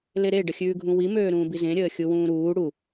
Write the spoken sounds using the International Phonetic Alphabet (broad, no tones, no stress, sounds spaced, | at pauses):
l e ɾ e ɖ ə xʲ ʉː ɡʱ ũ w i m øː ɾ ũː b i z ẽ ɾʲ əː xʲ u w ũː ɾ uː ɽ u